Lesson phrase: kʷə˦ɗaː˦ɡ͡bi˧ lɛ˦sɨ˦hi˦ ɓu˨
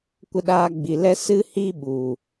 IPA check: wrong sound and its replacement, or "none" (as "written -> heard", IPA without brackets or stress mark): none